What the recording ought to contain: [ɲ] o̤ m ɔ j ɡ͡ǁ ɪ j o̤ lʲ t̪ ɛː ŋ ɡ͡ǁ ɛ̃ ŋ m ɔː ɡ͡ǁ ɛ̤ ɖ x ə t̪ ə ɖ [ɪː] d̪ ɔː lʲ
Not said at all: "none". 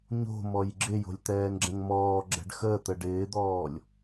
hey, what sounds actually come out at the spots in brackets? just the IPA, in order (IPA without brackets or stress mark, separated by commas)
ɲ, ɪː